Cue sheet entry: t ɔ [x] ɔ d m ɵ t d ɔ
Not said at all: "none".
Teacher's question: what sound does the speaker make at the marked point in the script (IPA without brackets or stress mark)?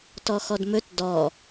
x